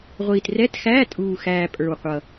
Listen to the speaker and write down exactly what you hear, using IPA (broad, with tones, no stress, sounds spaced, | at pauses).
ʁʷ iː˨˩ t r ɛ˧˥˧ t x æː˧˥˧ tʼ uː˨˩ x æː˨˩ pʼ ə˞˨˩ w qʷ ʌ˨˩